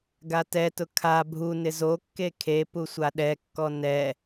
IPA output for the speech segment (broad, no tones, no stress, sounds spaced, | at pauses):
ɡ a t ɛ t ʊ kʰ a bʱ u n ɪ z o kː e kʰ e p u sʷ a ɗ ɛ kː ɔ n ɛ